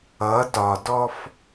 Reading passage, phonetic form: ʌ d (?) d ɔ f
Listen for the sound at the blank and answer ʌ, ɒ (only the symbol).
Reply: ɒ